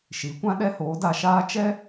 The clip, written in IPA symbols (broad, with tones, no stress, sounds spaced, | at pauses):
ʃ i˨˦ kʷ ã˦ ɗ ɛ˦ h oː˨˦ d a˧ ʃ aː˦ t͡ʃ ɛ˦